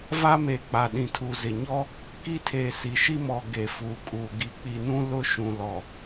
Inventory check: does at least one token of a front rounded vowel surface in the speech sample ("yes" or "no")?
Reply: no